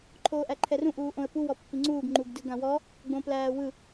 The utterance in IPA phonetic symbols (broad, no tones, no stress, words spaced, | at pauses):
ǃʰoːʔæǃʰɛrũ ʔuːʔõə̯pu wɔpːiŋ͡ǀuːɡ ŋ͡ǃuɡdɯɡãwɔ | ɡ͡bõplæːwɯ